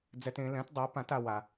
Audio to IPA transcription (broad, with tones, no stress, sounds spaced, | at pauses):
d͡z ɛ˦ t ẽ˨˥ l ɛ̃˨˥ t dˤ a˨˥ p ã˨˥ t a˦ w a˦